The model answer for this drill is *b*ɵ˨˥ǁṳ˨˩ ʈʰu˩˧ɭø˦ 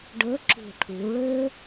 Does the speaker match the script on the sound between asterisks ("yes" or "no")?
no